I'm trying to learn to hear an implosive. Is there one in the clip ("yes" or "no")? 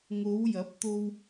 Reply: no